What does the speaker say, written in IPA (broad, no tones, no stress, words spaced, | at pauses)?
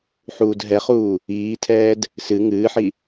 ħuːdɦɛχuː | iːtʰɛːd | sɨ ŋɨːħi